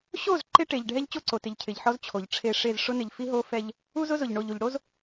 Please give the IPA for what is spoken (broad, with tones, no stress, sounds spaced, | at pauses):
ɕ o˦˨ z ǃ ɪ˦ ʈ e˨ ʎ ɖʱ ɛ˦ ʎ t͡ɕ o˦ ǀ o˨ t ɪ˨ ʎ cʰ ɪ˨ ʎ ħ ɔ˦ z t͡ɕʰ o˨ ʎ ʈ͡ʂʰ e˦˨ ʂ e˦˨ z ʂ ʊ˦ n ɪ˨ ʎ f i˦ ɦ o˦ f ɛ˦ ʎ | u˦ z ʊ˦ z ʊ˨ ʎ ɳ o˨ ʎ u˨ ʎ ɽ o˦ z